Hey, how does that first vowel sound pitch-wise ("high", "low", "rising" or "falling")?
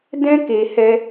high